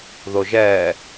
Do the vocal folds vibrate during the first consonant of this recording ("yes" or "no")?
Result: yes